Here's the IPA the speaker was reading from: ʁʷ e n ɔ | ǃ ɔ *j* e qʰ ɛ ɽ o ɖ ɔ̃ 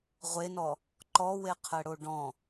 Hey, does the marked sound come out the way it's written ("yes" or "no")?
no